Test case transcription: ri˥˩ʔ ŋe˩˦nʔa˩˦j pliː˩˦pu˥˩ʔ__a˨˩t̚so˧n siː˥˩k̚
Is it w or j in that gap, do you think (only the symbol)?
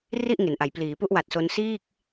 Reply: w